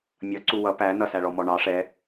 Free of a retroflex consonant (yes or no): no